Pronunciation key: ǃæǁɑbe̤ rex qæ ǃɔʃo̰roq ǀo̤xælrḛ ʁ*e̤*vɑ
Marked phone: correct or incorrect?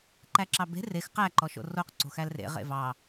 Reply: incorrect